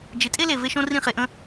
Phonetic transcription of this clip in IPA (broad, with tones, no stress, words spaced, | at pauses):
d͡ʒɪ˨˦tʼe˦le˨ ve˧ʃõ˧ rĩ˦˨χe˧ʔə̃˦